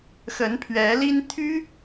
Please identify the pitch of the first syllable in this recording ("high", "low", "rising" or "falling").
rising